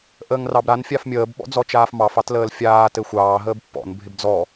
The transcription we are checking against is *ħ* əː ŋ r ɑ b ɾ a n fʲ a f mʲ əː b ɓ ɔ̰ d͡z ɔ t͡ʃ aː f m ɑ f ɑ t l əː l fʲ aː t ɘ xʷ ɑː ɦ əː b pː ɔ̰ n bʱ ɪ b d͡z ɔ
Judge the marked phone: incorrect: ʔ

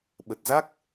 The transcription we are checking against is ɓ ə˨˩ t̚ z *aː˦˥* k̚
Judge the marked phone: incorrect: a˦˥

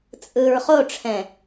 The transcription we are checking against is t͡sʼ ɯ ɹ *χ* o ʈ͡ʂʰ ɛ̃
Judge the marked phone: correct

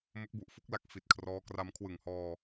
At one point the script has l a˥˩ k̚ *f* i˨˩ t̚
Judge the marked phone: correct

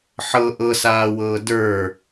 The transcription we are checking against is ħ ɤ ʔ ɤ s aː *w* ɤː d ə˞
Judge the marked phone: correct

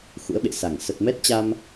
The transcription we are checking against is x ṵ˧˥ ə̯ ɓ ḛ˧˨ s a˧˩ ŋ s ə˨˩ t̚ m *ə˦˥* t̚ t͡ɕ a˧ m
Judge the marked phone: incorrect: ɛ˦˥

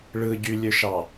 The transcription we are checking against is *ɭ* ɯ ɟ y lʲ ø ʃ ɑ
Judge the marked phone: correct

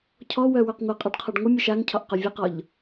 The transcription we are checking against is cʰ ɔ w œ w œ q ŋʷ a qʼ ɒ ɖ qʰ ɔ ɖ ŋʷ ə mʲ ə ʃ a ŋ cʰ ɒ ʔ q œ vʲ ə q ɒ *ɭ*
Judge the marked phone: incorrect: ʎ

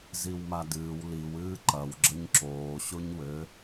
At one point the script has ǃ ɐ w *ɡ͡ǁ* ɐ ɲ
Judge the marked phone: correct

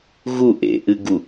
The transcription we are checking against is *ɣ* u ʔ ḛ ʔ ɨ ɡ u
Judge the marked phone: correct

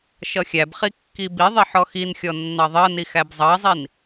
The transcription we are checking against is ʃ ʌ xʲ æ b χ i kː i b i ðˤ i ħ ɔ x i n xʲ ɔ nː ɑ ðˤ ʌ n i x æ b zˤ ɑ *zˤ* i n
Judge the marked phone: correct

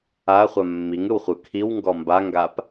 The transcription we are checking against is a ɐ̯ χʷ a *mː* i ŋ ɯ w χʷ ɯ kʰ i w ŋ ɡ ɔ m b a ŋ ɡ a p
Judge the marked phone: correct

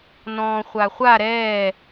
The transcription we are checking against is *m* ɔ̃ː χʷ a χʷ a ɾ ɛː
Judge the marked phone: incorrect: n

